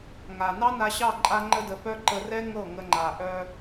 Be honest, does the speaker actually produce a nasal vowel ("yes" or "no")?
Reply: no